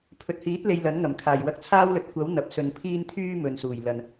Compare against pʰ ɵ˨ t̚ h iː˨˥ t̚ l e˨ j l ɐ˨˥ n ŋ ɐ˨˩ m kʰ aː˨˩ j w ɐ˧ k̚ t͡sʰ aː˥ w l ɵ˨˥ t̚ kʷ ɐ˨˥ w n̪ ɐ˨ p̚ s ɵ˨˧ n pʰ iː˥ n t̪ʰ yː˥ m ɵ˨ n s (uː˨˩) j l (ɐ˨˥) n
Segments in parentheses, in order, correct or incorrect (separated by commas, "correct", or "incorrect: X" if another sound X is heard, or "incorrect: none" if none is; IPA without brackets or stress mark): correct, incorrect: ɐ˨